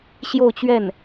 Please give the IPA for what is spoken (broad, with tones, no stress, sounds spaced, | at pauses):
ɕ j o˥˧ ʊ̯ t͡ɕ ɥ ɛ˥˩ n